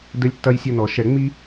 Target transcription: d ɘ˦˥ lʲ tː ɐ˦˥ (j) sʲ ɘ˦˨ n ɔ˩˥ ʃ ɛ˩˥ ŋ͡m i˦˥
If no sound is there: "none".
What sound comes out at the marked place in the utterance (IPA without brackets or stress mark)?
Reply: j